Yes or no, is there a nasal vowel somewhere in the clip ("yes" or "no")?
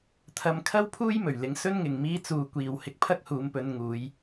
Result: no